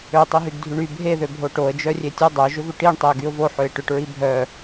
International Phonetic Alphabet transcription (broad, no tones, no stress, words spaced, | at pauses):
øtˤiɦyɡ dʱyɳy bʱeðøbʱo ʈoə̯d͡ʒœ rʲetʲʊ dˤœʒʏvʏ ʈiɳ tˤeə̯ɡyʊ̯vo ħøɪ̯ʈʏʈ ɹibʱœ